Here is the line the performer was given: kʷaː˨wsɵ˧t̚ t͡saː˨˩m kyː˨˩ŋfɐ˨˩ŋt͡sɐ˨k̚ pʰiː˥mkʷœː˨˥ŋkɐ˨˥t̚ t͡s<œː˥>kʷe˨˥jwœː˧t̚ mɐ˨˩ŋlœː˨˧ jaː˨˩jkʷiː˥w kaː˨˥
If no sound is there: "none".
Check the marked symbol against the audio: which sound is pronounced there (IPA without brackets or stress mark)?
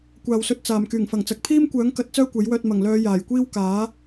œː˥